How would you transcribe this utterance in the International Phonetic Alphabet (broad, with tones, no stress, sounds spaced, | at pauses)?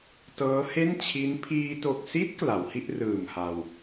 t ɤː˦˥ h e˥˩ n t͡ɕʰ i˦˥ n pʰ iː˧ t o˨˩ k̚ s i˦˥ t̚ k l a˩˦ w h i˥˩ ʔ r ɯː˨˩ m h a˧ w